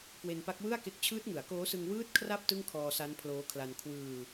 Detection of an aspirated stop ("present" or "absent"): present